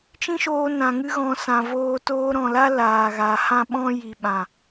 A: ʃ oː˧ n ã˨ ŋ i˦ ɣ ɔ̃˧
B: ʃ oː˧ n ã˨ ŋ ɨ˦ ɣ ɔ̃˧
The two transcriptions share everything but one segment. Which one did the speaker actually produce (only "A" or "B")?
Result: B